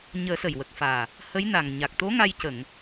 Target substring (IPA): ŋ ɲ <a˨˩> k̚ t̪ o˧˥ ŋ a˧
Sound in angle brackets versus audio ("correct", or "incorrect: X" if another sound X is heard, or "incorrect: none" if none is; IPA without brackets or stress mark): correct